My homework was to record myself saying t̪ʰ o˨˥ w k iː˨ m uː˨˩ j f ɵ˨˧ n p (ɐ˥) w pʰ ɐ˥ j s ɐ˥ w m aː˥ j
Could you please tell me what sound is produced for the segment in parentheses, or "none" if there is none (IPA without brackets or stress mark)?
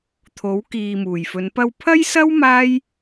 ɐ˧